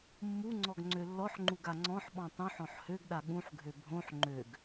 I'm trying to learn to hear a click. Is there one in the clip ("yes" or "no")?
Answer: yes